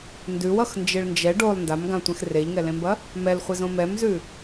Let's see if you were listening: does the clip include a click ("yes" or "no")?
no